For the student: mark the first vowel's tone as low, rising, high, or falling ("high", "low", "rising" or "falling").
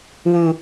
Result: low